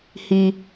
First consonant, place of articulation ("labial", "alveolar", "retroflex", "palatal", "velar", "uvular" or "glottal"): glottal